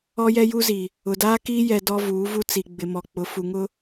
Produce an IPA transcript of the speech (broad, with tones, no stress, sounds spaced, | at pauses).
ɔ˦ j ɛ˦ j u˦ z i˨ | ʊ˨ d aː˦ k iː˦ j ɛ˨ d ɔ˦ v uː˨˦ v u˦ t͡s i˨ ɡ͡b ɪ˨ m ɔ˨ k͡p ʊ˨˦ f u˨ ŋ ʊ˦